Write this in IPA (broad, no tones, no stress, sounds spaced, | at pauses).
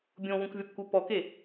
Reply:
bʲ õ w ũ k vʲ ɔ p k u p ɔ k e